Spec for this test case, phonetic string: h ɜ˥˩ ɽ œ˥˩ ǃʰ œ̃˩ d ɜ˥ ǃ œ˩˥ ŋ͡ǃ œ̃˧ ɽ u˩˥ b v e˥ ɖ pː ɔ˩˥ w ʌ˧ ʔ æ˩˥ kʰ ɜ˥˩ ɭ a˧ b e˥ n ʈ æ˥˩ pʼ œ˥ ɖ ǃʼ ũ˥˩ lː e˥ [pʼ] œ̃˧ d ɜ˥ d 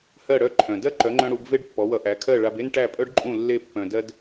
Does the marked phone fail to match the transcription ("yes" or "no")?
yes